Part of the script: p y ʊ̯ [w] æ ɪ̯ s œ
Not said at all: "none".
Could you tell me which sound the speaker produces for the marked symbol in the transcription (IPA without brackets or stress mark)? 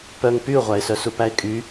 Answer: ʁʷ